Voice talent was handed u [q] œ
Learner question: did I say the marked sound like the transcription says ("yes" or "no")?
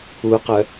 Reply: yes